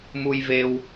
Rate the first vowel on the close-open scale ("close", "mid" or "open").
close